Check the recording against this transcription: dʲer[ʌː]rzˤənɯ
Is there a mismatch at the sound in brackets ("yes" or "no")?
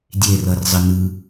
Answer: yes